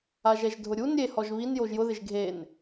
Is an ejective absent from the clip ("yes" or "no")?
yes